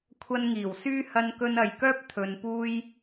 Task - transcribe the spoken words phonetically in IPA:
kʷʰɐ˧nŋiː˨˩wsyː˥ hɐ˧nkɵ˧nɐ˨jkœː˥p̚ t̪ʰɵ˨npuː˧j

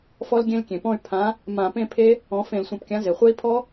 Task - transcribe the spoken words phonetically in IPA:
fɔ˦˥lɡʲẽ˦˥lkʲẽ˩pɔ̃˥˨y̯ pʰã˨˥ | mã˧˩˧pẽ˥˨pʰe˦˥ | ɔ̃˨˥ fẽ˧˩˧lsʷẽ˧˩˧pkʲã˨˥ ze˩χʷe˦˥i̯ pʰɔ˦˥

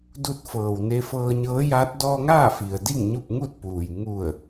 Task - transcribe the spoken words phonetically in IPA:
du˧t̚fɤː˩wne˧fɤː˧ ɲɤː˧˥jaː˧˥t̚ dɔː˧ŋaː˥˨fi˩ə̯ di˥˨ŋɲu˥˨p̚ŋu˥˨t̚puː˩j ŋu˧˩ə̯

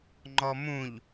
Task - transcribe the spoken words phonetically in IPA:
ŋ͡ǃɔmũʎ

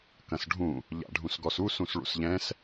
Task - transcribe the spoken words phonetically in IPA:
kɐ̃sɖʱũ | ʎa̰ɖʱũsɡɔsu sũsɭṵsʎɛ̃s

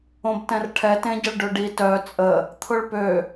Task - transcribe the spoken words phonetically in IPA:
õbtɛ̃rʈʰɛ tẽɟəɭɖøɖi tœ t͡sʼə | t̪ʰʊɭpø

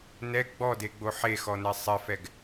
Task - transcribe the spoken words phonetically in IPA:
nɛ ɡ͡bɔdeɡ͡bo ħexɔnɛ sˤɪfɛɡ

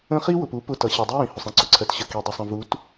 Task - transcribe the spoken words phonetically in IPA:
ə̃˦ χi˦wʊ˨pu˨˦ pʊ˨ tʌ˨ɕi˨dˤi˦jĩ˨ hʊ˨sˤĩ˦ǀʊ˨ǀʰɜ˨t ɕə˨ki˨dˤi˨sˤə̃˨ vu˨˦t

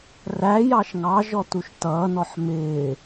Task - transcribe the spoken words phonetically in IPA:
ræ jɑʃŋɑʒɔ tuʃtʌːnɔħ mɪː

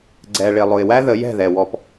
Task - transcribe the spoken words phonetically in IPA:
ɡ͡ǀɛ˨ɭɪ˨ lˠʊ˨ɪ̯wæ˦ ðə˨˦jɛ̤˦˨ðɛ˨ wɔ˦p

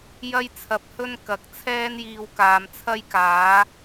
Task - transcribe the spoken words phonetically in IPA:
jɐ˥jt͡sʰɐ˧p̚ hɵ˥n kɐ˨˥k̚ t͡sʰɛː˥njiː˧wkaː˨m t͡sʰɐ˥jkaː˨˥

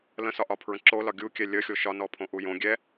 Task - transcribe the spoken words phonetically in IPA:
lə̃sɒʔɒpʰɹə̃ ǁolɒ ɡʲukʲɛ lʲəxʲo ʃɒnɔpʰõʔu jõ ɡʲɛ

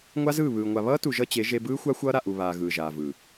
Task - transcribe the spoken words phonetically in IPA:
ŋʷa˦zɯː˦˨βɯː˨ŋʷa˨ βʌː˦tu˨ ʒʌ˦t͡ɕe˨˦ ʒe˦ bɯː˦xʷa˦ xʷʌː˦ɾa˨ʔu˨βaː˨ ɣɯː˨ʒaː˨vɯ˨

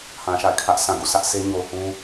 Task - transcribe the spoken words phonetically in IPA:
hã˨ʃa̰˦˨ɪ̯kʰä˦ʔ sʰã˨ɡṵ˦˨sä˦ʔ sʰe˦ɲo˨ʊ̯hũ˦

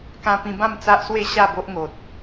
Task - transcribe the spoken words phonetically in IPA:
kã˧pĩ˧bã˥˧m t͡sa˦ʔswe˥˧ ɕa˥˧bo˦ʔŋo˨t̚

